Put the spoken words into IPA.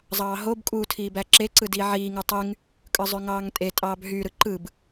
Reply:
zˤ ɑː ɦ o b kʼ u tʰ iː b æ ǁ e ǀ ɯ d iː ʕ iː ŋ ɯ tˤ y ŋ | kʼ ɯ zˤ ø ŋ ɑː ŋ tʼ e tʼ ɑː b ɦ y ɾ ɯ ǃ ɯ b

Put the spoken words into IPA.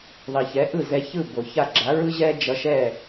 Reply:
ðˤ i˩ ç ɛ˩˥ ʔ ɯ˥˩ z ɛ˧ ç ɯ˥˩ b o˩ ç a˥˩ ɡ͡ǁ a˩˥ ɹ ɯ˥ ʑ ɛ˥ d͡ʒ ʌ˧ ʃ ɛ˥˩

